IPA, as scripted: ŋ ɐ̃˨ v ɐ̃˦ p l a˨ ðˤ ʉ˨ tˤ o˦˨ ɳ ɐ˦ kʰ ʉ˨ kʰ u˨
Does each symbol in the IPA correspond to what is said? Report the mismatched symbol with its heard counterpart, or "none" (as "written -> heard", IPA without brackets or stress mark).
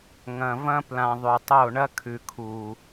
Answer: a˨ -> ã˨